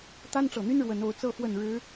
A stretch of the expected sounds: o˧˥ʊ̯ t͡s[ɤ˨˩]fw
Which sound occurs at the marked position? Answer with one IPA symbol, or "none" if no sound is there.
ɤ˥˧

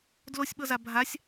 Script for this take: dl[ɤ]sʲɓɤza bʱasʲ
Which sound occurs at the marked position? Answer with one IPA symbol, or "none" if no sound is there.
o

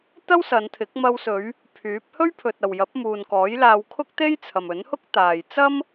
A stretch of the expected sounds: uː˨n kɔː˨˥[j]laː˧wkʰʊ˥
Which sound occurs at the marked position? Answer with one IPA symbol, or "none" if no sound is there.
j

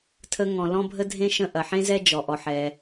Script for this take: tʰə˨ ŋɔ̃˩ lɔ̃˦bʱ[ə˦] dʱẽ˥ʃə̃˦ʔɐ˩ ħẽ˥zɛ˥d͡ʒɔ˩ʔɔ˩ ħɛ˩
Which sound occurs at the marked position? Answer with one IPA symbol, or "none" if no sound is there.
ə˦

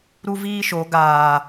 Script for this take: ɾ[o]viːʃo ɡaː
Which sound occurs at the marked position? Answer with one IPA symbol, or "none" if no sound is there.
u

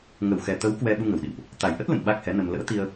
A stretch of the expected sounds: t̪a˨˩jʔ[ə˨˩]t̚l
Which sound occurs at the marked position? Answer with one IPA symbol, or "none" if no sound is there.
ə˦˥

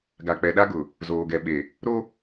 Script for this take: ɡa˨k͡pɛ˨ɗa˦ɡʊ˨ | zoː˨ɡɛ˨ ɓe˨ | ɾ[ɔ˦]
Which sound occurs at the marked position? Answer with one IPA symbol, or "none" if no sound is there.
o˦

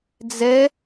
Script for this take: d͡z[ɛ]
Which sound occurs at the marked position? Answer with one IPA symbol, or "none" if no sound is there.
ɛ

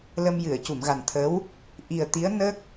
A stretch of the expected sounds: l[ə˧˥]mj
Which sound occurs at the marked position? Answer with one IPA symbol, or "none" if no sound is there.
ə˧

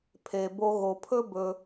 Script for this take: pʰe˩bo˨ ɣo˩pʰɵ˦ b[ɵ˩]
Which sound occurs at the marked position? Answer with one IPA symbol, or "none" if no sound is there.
ɵ˨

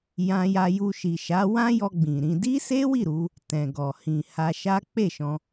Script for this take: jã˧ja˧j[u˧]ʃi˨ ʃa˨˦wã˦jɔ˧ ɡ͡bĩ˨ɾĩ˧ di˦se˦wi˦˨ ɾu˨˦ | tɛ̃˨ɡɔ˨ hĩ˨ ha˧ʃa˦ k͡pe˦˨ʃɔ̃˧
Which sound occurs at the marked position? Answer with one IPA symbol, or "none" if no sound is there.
u˧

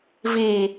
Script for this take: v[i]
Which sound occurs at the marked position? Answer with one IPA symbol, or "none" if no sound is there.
i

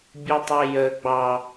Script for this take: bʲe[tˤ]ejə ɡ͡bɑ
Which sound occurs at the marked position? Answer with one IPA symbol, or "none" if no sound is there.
tˤ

